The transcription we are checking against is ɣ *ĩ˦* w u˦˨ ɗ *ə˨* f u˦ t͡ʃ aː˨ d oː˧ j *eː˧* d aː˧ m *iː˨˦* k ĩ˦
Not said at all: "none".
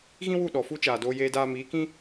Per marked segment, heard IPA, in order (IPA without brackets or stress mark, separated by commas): ĩ˦, ɔ˨, eː˧, iː˨˦